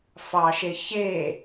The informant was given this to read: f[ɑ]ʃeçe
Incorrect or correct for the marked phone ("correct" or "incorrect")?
correct